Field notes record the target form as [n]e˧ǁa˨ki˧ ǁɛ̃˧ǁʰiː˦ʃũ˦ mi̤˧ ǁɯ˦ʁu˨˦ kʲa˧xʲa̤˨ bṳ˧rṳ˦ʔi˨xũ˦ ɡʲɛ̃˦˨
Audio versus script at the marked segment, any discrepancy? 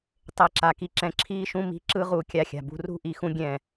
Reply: yes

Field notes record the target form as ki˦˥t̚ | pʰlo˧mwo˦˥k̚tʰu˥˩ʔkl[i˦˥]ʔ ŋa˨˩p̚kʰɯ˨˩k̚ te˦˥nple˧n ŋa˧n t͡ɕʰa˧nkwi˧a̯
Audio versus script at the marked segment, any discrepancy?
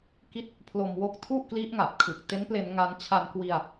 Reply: no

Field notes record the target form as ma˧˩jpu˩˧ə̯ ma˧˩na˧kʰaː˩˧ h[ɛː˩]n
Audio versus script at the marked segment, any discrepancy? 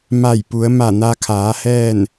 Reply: yes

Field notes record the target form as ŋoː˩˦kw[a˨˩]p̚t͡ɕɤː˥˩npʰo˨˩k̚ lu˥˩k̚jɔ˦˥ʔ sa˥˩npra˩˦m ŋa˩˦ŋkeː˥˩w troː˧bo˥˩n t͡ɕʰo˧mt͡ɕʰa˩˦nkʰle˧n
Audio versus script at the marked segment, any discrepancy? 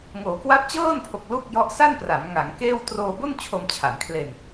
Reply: yes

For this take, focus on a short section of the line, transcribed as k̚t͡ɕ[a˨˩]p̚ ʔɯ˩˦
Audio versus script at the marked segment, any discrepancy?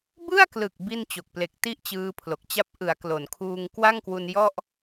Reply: yes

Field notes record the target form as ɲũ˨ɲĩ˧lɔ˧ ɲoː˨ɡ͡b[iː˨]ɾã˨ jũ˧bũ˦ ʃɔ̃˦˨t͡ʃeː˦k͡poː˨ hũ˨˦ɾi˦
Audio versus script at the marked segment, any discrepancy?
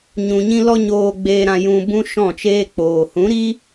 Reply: yes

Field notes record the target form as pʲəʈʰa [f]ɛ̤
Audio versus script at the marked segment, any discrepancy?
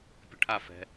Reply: no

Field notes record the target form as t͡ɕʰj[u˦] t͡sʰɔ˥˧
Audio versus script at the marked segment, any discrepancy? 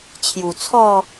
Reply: yes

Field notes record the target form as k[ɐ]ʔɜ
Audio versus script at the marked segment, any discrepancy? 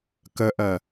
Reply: yes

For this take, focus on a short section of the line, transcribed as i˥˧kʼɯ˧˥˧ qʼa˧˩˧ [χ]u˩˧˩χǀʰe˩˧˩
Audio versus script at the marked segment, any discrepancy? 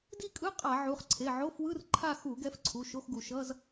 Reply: yes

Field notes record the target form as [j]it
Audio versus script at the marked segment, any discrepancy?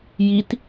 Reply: no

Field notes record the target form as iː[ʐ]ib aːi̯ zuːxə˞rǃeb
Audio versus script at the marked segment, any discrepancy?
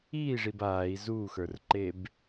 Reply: no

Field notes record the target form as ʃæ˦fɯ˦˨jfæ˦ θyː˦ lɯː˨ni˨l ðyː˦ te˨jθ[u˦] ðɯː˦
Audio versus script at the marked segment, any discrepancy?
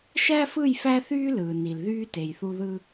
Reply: no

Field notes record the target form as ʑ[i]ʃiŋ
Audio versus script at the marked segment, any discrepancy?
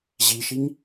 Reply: no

